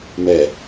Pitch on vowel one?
low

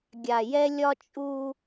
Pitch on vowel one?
low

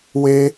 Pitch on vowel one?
high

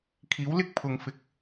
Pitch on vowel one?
rising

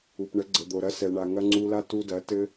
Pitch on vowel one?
low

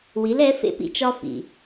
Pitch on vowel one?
rising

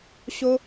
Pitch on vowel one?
high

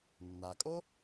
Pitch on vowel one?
low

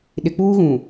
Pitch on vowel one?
low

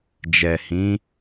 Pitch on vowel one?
low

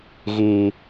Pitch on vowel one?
high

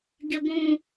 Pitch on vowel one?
high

